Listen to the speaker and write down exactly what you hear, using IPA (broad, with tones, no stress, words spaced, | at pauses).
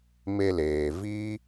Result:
me˧leː˨ viː˦